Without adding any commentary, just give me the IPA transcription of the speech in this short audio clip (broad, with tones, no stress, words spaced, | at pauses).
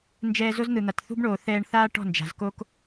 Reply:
nd͡ʒɛː˧zo˦zn̪ɯ˨n̪a˨t θṳ˦bɳoː˨ θɛː˧ɳθaː˦ ʈɔ̤˦˨nd͡ʒa̤˨zko˦k